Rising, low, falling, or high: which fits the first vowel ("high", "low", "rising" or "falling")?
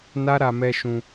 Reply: high